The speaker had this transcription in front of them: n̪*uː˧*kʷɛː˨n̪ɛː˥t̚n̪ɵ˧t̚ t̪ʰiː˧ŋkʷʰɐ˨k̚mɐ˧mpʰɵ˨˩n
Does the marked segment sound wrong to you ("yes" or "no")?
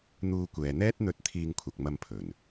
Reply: no